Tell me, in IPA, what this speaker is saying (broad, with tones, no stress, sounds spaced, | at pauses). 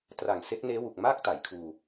t r a˨˩ ŋ s e˦˥ k̚ n eː˦˥ w u˨˩ k̚ m aː˥˩ k̚ t a˩˦ j kʰ uː˧